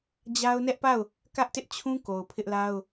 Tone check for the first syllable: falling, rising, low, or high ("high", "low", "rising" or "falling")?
high